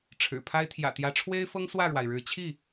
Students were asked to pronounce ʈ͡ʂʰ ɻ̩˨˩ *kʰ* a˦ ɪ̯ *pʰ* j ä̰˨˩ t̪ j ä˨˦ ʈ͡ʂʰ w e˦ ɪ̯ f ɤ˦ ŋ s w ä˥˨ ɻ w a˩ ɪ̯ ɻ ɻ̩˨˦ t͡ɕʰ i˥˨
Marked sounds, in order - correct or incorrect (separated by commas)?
incorrect, incorrect